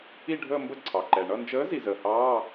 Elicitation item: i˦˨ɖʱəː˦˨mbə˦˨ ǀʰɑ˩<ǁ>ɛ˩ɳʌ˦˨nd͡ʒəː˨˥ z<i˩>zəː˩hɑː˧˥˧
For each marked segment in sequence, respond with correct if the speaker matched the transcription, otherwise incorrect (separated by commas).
incorrect, correct